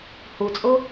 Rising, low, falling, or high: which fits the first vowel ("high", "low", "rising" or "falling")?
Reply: low